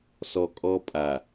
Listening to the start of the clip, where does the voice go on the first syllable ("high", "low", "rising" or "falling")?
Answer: low